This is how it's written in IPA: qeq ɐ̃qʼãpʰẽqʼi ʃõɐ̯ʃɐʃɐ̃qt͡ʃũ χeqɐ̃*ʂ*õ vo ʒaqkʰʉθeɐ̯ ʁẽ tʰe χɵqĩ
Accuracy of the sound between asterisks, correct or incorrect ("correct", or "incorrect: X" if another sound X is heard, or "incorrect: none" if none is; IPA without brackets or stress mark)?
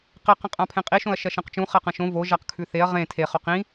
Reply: incorrect: ʃ